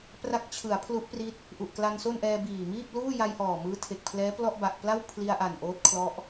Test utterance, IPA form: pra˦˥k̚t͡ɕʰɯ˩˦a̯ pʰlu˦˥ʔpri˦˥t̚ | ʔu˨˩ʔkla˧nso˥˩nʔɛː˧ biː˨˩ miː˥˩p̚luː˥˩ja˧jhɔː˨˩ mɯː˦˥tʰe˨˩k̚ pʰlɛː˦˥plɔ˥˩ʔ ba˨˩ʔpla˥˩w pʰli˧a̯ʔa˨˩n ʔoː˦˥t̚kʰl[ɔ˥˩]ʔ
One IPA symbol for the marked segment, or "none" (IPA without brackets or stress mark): ɔ˦˥